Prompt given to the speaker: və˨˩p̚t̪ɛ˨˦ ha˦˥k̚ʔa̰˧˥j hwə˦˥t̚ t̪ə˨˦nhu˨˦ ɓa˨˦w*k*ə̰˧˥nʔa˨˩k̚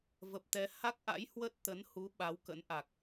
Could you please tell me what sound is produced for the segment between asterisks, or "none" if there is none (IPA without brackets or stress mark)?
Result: k